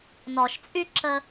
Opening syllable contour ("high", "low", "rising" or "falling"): low